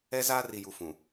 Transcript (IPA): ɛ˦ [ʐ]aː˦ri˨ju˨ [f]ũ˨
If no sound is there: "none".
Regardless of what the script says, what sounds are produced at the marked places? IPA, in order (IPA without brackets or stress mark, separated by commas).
z, f